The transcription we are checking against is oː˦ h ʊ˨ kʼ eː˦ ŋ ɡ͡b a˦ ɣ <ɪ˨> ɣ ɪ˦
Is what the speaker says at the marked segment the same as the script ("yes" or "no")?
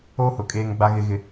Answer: no